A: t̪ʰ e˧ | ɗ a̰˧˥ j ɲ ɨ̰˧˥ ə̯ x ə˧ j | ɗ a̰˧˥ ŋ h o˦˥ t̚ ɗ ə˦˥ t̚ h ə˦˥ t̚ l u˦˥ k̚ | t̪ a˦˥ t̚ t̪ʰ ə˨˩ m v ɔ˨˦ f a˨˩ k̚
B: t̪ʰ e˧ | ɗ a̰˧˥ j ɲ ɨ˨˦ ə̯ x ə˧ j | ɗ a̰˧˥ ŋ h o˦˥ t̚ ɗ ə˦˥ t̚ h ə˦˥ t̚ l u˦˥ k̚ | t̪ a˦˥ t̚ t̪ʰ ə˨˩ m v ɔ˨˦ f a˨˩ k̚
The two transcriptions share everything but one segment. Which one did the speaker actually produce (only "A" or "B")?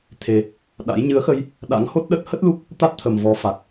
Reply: B